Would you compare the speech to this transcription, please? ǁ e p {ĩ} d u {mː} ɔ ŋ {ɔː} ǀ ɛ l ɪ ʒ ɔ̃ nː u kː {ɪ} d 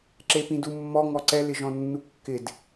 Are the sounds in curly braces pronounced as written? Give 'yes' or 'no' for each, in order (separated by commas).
yes, yes, no, yes